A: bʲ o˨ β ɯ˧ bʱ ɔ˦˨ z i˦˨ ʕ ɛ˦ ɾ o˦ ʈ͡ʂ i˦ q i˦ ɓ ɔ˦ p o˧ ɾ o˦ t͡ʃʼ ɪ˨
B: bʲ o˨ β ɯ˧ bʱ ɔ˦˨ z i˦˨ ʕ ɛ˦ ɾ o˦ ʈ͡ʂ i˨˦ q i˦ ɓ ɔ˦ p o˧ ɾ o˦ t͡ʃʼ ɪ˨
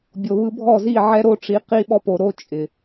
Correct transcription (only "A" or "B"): B